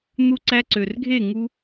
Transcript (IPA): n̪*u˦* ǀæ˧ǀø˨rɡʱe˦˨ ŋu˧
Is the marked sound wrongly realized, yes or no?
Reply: no